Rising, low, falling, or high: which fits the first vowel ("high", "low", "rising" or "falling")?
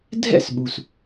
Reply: falling